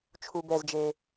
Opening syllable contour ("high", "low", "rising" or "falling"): low